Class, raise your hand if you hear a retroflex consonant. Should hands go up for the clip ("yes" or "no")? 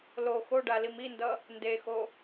yes